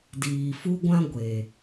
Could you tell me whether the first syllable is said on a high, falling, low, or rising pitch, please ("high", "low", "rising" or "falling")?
low